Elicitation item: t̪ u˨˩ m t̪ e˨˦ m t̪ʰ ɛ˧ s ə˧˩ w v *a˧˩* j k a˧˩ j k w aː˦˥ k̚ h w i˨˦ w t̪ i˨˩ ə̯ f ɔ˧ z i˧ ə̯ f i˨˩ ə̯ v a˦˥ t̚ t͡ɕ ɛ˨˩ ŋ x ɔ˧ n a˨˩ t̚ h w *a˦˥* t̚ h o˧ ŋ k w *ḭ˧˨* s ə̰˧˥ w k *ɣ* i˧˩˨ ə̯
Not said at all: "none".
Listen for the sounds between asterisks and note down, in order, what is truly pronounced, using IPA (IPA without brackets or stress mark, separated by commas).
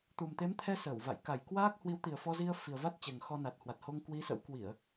a̰˧˨, a˨˩, i˨˦, w